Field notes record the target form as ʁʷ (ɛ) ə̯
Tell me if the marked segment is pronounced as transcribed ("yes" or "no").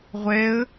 yes